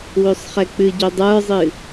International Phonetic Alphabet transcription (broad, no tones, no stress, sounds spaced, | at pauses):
w ø sˤ χ ɛ k͡p ɨ ɟ u dˤ ə˞ zˤ ɨ